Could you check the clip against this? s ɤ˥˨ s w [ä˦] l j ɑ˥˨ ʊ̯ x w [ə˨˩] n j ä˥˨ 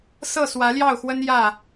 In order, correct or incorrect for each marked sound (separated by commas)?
incorrect, incorrect